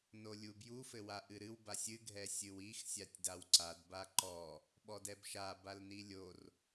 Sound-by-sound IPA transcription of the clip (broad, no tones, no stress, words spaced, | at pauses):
nolʲubju fɘwaʔɨɾɨw basʲɨ ɡʱɛsʲɨwix sʲatʲdawǀad baǃɔ | ɓɔdɛbʃa balnilʲor